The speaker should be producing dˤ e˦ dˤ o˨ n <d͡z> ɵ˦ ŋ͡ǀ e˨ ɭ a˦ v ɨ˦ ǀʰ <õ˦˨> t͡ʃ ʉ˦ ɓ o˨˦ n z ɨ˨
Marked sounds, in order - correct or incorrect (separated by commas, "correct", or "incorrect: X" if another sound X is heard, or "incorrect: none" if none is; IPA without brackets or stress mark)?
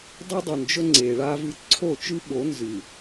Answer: incorrect: d͡ʒ, incorrect: o˦˨